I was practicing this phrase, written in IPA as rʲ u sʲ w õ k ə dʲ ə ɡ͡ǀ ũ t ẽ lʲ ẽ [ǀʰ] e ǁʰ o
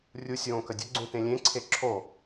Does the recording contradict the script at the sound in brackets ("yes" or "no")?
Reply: no